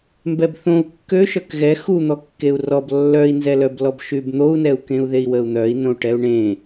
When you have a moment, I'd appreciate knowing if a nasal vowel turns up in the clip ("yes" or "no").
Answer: yes